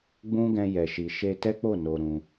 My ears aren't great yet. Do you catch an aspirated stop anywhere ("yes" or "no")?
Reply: no